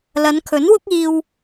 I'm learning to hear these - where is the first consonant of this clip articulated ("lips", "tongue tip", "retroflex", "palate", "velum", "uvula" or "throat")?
tongue tip